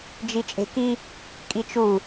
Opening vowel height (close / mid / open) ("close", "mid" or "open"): close